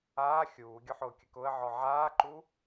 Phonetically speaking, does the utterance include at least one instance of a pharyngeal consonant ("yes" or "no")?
yes